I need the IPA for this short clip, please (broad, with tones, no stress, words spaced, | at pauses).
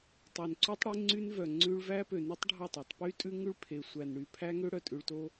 tˤø˨nǀʉ˦tˤ ɽe˦ŋ͡ǀy˦nvœ˨ ŋ͡ǀʉ˦ɭ væ˦pø˨ny˦tˤɖʱɑ˦˨tˤ ʉ˨tˤpy˦tʼʉ˦ ŋʉ˦ɭpʰe˨ sʷæ˨n ɽy˨pʰæ˦ŋø˦ ɽœ˨tʼʉ˨ɭto˦